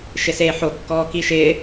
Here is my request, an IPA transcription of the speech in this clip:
ʃ ɪ s eː ħ o kː ɔː k i ʃ ɪː

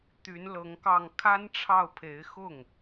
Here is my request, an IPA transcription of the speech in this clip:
t̪ y˧˥ n l ɤ˧˥ ŋ k ɑ˥˩ ŋ kʰ a˥ n ʈ͡ʂʰ ɑ˥˩ ʊ̯ pʰ e˧˥ ɪ̯ x ʊ˥˩ ŋ

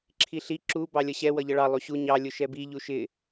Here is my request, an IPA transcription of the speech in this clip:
ǁʰ i ɬ i ǁ u b ɑ lʲ ʌ ɕ ɛ w ʌ ʎ ʌ ɭ ɑ lˠ u ɕ u ɲ ɑ lʲ ʊ ʃ ɛ b i ʎ u ʃ ɪ

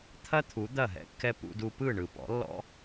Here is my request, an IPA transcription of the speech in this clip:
t̪ʰ ɐ˦ t̪ʰ u˨˦ d̪ ɐ˦˨ ɦ ɛ̰˦ kː ɛ˦ p ṵ˦ d u˦ p ɯ˦˨ ɳ ɯ˨ p ɔ̰˨˦ lː ɔ̰˦

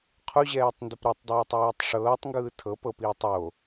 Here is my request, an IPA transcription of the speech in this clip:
qʰ u ʑ ɛː tˤ n d o p ɾ ɤ tˤ dˤ ɤː tˤ w iː tˤ ʂ ɤː tˤ ŋ ɡ ɯː tʰ ɤ p ɤ p iː tˤ o

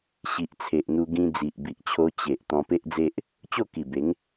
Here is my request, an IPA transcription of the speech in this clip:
ɕ i˨ ʔ t͡sʰ e˨ ʔ n̪ u˧ ɡ ĩ˧ d͡z i˨ ʔ b i˨ ʔ t͡ɕʰ o˧ t͡ɕ e˨ ʔ t̪ ɔ̃˧ p e˦ ʔ d͡z e˦ ʔ | t͡ɕ o˥˧ k i˨˩ b e˨˦ ŋ

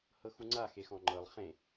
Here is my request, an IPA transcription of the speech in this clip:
h ɤ x u ŋ͡ǀ a x e x ɔ̃ ŋ͡ǃ ɤ lˠ χ ẽ

